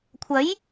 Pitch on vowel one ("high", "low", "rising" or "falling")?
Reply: rising